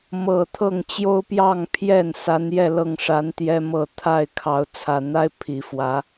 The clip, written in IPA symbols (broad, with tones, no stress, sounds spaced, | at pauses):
m ɤ˨˩ t̪ʰ ɤ˥˨ ŋ t͡ɕ j o˦ ʊ̯ p j ɑ˥˨ ŋ pʰ j ɛ˥˨ n s a˨˦ n j ɛ˥˨ l ɤ˥˨ ŋ ʂ a˨˦ n t̪ j ɛ˦ m ɤ˥˨ t̪ʰ a˥˨ ɪ̯ kʰ ɑ˨˦ ʊ̯ t͡sʰ ä˨˩ n̪ a˦ ɪ̯ pʰ i˨˩ f w ä˨˦